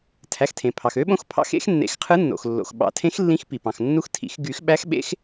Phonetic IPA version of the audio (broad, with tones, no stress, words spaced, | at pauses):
tʰæ˩˧˩xtʰẽ˩pʰɑ˩x ø˧˥ɓõ˧˥xpʰɑ̰˧˥x ḛ˧˥xnːḛ˨˩˦x qʰɯ˧˥nːo̰˩x lːo̰˩xɓɑ̰˨˩˦tʰẽ˧˥x lːĩ˧˥xpi˩pɑ̃˩x nːu˧˥xtʰḭ˨˩˦x ɡy˨˩˦x ɓæ˧˥xɓḛ˧˥x